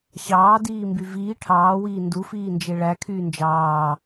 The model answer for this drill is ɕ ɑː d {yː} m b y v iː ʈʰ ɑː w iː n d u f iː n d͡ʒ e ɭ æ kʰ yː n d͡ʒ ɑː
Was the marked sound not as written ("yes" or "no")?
yes